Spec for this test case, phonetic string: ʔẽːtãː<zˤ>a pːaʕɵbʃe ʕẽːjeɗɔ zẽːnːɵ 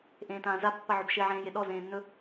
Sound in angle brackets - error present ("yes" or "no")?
yes